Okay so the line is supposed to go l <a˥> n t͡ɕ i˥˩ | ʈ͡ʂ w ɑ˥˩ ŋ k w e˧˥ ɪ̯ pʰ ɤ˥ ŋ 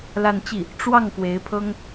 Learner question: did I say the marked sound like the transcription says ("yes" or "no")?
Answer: no